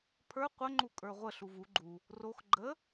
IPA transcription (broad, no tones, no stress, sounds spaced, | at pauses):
pʰ ə˞ qʷ ə ŋ͡ǃ u kʼ ə˞ ʁʷ ə ɬ u v u ɡ͡ǃ u | r o x ɡ͡ǃ ə